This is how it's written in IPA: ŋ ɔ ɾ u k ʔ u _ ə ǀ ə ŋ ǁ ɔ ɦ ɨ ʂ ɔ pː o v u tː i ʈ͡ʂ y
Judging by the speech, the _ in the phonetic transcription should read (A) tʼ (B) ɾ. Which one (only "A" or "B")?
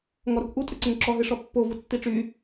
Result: A